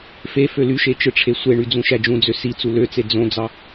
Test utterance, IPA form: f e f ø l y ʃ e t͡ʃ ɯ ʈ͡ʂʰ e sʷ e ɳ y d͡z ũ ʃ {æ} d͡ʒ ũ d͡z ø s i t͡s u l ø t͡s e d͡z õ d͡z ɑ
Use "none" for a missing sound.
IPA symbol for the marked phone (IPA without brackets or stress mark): æ